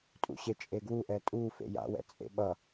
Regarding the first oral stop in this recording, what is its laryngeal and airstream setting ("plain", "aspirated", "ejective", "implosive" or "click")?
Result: ejective